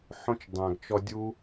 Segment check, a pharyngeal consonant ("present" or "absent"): present